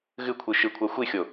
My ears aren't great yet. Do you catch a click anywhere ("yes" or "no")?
no